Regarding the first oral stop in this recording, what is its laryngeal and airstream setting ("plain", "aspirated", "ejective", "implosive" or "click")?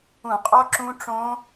ejective